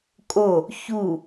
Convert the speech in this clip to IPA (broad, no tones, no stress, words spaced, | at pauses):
kʼo | çu